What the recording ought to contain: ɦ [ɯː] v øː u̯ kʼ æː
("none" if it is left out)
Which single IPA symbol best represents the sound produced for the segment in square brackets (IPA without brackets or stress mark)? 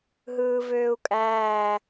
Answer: ɯː